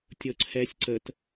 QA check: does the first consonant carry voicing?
no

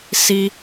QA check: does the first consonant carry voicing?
no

